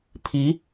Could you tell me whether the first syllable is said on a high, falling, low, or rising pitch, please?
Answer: rising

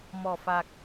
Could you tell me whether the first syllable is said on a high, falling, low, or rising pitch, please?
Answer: low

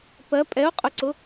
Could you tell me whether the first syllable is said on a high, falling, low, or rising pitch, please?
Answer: rising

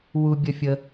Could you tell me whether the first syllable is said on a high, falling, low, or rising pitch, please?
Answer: high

